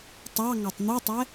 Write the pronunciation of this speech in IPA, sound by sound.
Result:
tˤ ɑ ŋ ɑ tˤ n̪ u tˤ ɛ

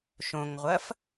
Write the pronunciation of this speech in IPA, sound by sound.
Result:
ʃ õ ŋ ʁʷ ɐ f

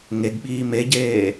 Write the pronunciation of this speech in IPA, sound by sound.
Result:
ŋ e ɡ ɓ iː m e ɟ eː

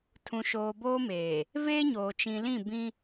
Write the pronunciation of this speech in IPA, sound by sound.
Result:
tʰ ũ˨ ʃ oː˨ b oː˦ m eː˨ | v eː˦ ɲ oː˨ t͡ʃ ĩ˨ l ĩ˦˨ b ĩ˦

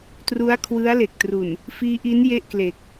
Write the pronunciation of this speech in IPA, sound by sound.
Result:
t r u˦˥ a̯ kʰ w ɯ˦˥ a̯ l e˨˩ k̚ t r u˨˩ n | f iː˦˥ ʔ i˦˥ n j e˥˩ ʔ k l e˨˩ k̚

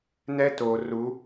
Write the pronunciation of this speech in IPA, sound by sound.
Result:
n ɛ˦ t oː˨ r u˨˦

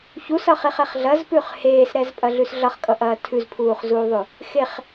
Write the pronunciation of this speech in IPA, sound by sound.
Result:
ç u s ʌ χ e χ ɛ χ ɮ ɐ z p ʉ χ h eː s ɾ ɛ z pʼ ɐ ɮ ʉ s ɮ ʌ χ kʼ ʌ ʔ ɐː tʰ ʉ z pʰ uː χ z uː ðˤ ʉ | x e χ

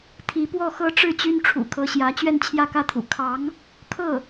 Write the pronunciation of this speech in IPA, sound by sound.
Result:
t̪ʰ i˧˥ p w ɔ˥˩ x ɤ˥ ʈ͡ʂ ɻ̩˥˩ t͡ɕ y˥ n ʈ͡ʂʰ ṵ˨˩ kʰ ɤ˧˥ ɕ j ä˧˥ t͡ɕ ɥ ɛ˥˧ n t͡ɕʰ j ä˥˧ k ä˥˩ t̪ʰ ṵ˨˩ kʰ ɑ˧˥ ŋ | kʰ ɤ˥˩

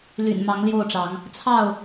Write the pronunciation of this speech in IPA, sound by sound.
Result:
l y̰˨˩ n m ɑ˨˦ ŋ l j o˥˨ ʊ̯ ʈ͡ʂ ɑ˨˦ ŋ | t͡sʰ ɑ˥˨ ʊ̯

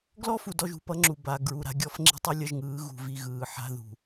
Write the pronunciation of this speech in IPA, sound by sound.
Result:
ɡ l ɔ˦ f u˨ d ɔ˦ ʒ ṳ˨ p ʌ˦ ŋ͡ǁ u˨ b a˨ ɡ ɹ u˨ ɾ a̤˦ ɡʲ ɔ˦ f ŋ͡ǁ i̤˦ tˤ ɯ˦ lʲ ʌ˦ ʒ ŋ ɯː˨˦ ɣ ṳ˨ v i˦˨ ɣ ɯː˨ ħ a̤˦ ð ṳ˨

